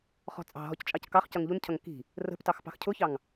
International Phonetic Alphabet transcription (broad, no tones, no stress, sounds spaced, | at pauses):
χ ɔ̤ t͡sʼ ɑ̤ ɦ ɔ c t͡ʃʼ ɑ c k ɑ χ c ʌ ŋ ʎ u n cʰ ʌ ŋ k i̤ | r ə̤ p t ɑ x p ɑ̤ x cʰ ʊ ç ɑ ŋ